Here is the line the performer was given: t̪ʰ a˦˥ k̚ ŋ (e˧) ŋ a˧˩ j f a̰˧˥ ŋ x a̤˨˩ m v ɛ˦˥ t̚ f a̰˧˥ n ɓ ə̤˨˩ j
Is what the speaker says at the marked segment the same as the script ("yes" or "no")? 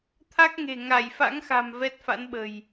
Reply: no